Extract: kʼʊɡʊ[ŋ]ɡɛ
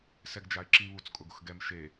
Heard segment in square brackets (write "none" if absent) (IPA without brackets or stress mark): x